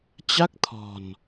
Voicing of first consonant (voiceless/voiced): voiceless